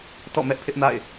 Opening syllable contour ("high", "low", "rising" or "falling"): falling